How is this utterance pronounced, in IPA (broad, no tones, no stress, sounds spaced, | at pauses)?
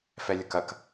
f ɛ lʲ ɐ k ɐ k